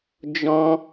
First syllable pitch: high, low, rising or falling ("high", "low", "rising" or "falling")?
high